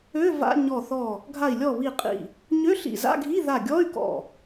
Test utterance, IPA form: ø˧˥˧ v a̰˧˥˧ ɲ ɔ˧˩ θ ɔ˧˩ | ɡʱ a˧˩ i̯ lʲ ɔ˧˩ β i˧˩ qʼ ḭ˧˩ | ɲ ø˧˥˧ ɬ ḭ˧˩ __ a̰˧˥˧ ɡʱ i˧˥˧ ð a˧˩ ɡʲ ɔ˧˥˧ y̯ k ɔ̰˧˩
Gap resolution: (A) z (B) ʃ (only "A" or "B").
A